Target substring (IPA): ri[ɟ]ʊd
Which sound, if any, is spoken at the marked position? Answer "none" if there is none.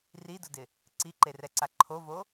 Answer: d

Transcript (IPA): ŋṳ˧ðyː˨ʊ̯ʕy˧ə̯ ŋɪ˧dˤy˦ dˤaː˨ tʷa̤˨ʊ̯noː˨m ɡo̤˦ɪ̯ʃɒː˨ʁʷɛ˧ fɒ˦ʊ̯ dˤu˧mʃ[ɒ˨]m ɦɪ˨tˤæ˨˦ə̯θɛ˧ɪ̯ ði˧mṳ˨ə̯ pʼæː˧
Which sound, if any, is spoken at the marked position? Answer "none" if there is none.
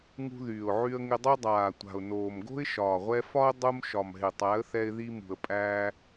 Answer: ɒ˨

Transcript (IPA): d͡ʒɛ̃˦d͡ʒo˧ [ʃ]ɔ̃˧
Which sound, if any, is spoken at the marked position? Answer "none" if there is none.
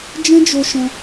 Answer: ʃ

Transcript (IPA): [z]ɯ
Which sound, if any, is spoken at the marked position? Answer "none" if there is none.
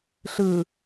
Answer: ɬ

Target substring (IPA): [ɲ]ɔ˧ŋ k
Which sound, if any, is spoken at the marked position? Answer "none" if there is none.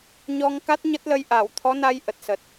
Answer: ɲ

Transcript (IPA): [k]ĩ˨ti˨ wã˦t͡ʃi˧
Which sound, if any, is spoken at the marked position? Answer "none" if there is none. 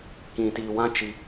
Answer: k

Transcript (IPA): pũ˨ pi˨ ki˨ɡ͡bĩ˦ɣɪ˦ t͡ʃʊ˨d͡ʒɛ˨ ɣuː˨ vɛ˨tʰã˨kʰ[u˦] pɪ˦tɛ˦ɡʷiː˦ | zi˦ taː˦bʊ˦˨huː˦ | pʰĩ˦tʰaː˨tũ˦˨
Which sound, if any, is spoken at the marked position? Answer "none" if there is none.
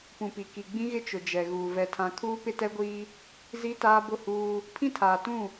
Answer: uː˦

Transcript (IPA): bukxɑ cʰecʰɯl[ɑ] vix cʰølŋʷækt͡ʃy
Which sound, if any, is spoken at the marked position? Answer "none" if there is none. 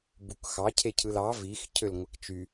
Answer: ɑ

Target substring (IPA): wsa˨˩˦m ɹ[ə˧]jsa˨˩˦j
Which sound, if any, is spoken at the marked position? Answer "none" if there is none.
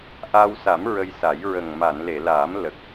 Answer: ə˧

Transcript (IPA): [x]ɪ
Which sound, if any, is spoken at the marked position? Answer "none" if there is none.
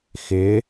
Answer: x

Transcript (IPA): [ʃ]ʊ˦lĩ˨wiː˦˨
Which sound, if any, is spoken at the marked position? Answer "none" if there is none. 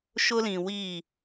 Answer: ʃ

